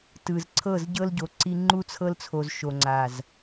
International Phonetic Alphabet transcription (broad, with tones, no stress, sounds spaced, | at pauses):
t ɯ˨ z ǀʰ ɤ˦˨ z ɟ ɤ˦ l ɟ o˨ ǀ i˦ ŋ͡ǃ u˦ t͡sʰ ɤ˦ l t͡sʰ o˨ z ʃ o˨ ŋ͡ǀ a˨ z